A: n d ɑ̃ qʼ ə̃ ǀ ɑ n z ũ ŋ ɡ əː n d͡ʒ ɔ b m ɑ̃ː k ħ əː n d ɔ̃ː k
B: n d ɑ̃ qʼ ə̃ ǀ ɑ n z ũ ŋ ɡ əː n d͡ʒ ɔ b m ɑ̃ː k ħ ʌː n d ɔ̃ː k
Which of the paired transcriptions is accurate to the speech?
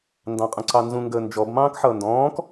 B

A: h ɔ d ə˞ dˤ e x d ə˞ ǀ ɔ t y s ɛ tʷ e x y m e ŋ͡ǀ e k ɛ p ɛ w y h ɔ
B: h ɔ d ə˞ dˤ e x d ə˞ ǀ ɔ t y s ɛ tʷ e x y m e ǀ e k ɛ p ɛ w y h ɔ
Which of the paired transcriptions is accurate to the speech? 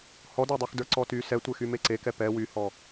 B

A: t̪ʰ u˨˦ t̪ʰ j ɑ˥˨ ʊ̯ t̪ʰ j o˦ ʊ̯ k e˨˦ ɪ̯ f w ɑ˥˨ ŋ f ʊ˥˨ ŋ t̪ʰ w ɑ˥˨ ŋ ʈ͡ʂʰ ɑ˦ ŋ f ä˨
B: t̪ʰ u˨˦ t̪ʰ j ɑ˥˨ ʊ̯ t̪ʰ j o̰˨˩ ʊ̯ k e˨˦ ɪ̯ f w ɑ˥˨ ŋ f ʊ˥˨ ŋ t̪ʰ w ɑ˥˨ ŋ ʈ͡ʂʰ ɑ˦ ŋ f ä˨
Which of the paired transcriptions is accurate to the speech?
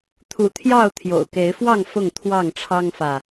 B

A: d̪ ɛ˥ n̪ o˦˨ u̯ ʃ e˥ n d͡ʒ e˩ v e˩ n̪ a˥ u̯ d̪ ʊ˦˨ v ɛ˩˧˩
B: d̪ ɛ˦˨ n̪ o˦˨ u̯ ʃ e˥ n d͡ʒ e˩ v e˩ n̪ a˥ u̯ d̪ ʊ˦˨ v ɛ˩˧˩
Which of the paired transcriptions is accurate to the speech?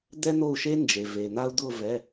A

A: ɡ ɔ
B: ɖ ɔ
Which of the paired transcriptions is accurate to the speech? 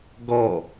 A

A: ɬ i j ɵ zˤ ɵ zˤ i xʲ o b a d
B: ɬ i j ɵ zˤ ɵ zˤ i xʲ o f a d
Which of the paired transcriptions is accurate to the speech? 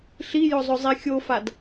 B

